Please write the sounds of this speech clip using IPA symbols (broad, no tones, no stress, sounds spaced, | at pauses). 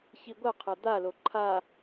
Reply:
ç i ɡʷ ɐ qʰ ɐ d̪ a l o ǃʰ a